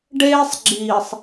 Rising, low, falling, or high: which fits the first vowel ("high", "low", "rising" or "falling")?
high